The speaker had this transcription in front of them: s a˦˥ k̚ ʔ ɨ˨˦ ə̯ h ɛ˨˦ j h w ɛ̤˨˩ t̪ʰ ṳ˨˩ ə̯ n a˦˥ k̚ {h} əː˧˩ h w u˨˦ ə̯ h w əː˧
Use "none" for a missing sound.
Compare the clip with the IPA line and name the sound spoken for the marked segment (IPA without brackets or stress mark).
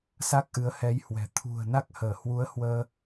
h